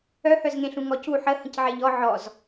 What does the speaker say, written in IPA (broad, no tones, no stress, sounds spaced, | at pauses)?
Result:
œ h œ z ŋ ẽ ɬ ũ ŋ ɔ c u ħ ə h ə̃ c ʕ e ʎ ɔ ʕ ɔ z